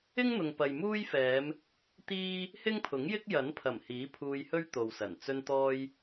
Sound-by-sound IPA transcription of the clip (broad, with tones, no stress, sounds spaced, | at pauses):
ɪ˥ ŋ n̪ ʊ˨ ŋ p ɐ˨ j m uː˥ j f ɛː˨˧ m | t̪ iː˥ | h ɪ˥ ŋ pʰ ʊ˨˥ ŋ j ɪ˥ k̚ j ɐ˨˥ n pʰ ɐ˨˩ m h iː˨˥ pʰ uː˧ j h ɵ˥ ɥ t̪ o˨ w s ɐ˨˩ n t͡s ɵ˧ n t̪ ɔː˧ j